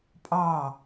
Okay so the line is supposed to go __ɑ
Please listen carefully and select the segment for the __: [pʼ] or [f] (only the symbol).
pʼ